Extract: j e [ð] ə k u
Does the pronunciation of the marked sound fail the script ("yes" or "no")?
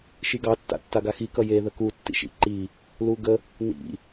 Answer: no